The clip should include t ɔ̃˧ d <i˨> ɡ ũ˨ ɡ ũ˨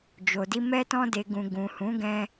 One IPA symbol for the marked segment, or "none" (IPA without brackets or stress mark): e˨